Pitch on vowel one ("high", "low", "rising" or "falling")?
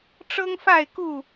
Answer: high